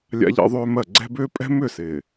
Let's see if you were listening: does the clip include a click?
yes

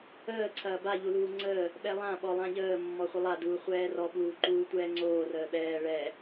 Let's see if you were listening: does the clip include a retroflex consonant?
yes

